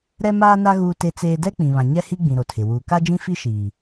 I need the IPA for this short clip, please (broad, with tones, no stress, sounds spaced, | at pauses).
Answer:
ɾ ɛ˦ m aː˦ n a˦ ɣ uː˦ t e˦ t͡s eː˦ d ɛ˦ k͡p ĩ˨ β ã˨ ɲ ɛ˦ h i˦ ɡ͡b ĩ˨ ɾ o˨ tʰ ɪ˨ w uː˨ k a˦ d͡ʒ ĩ˦ f i˦ ʃ iː˨